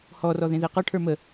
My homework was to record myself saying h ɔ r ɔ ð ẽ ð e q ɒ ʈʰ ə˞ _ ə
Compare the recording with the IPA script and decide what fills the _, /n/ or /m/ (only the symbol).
m